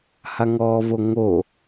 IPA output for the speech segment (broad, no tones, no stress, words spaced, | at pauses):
haŋɔːvoŋo